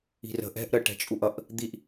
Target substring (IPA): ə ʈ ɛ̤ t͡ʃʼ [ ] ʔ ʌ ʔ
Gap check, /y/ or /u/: u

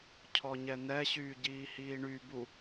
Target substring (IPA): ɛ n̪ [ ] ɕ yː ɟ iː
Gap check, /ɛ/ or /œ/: ɛ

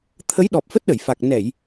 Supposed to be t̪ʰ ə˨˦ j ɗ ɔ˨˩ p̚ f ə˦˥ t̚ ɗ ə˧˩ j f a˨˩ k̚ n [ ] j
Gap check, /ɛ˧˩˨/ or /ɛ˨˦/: ɛ˧˩˨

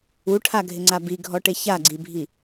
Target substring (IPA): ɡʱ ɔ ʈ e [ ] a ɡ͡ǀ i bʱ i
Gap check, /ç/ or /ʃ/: ç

